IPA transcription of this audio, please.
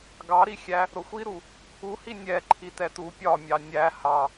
ɡ ɑ ɾ i xʲ æ | ɾ ʊ xʷ i ɾ u | u h i nʲ ɛ ǃʰ i t ɛ t u pʲ ɒ mʲ ɑ nʲ æ h ɑ

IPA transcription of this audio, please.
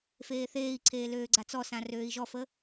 f eː θ eː i̯ ǀʰ eː l øː ɡ͡ǀ a t͡s ɔ s ã r øː i̯ ʒ ɔ f ə

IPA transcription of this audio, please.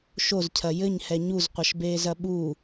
ʃ o z cʰ ɐ j ɘ ɲ h ɛ ɲ u z qʷ ɐ ʃ b eː z ɐ ɓ u

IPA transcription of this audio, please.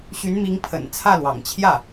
ɕ y˧˥ n m i˧˥ ŋ pʰ ə̰˨˩ n t͡sʰ ä˥˩ l w ɑ̰˨˩ ŋ t͡ɕʰ j ä˥˩

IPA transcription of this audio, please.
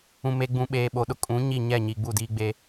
ũ˨ m e˨ ɡ͡b ũ˨ ɓ eː˨ ɓ o˨ ɗ ʊ˦ kʼ ũ˨˦ ɲ i˦˨ ɲ ɛ˦˨ ɲ i˨ ɡ͡b u˦˨ d iː˦ ɡ͡b e˦

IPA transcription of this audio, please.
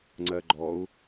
ŋ͡ǀ ɜ ɡ͡ǃ ɔ u̯

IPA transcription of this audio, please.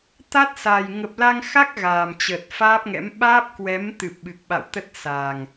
t̪ a˦˥ t̚ s a˨˩ j ŋ ə˨˩ p̚ l a˧ ŋ x a˦˥ k̚ ɣ aː˨˩ m t͡ɕ ə˨˩ t̚ f aː˦˥ p̚ ŋ ɛ̰˧˥ m ɓ aː˦˥ p̚ k w ɛ˨˦ m t̪ ɨ˨˩ p̚ ɓ ɨ˨˩ k̚ ɓ a̰˧˨ w t̪ ə˦˥ t̚ s a˨˩ ŋ

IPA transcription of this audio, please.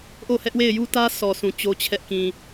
ʔ o˦˨ h ɛ˦ ʔ w e˦˨ ɪ̯ j u˦ t ä˦ s ɔ˨ sʰ ũ˨ t͡ɕ o˦ t͡ɕʰ ɛ˦ ʔ k ĩ˨

